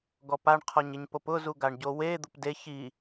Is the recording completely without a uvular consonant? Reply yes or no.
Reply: no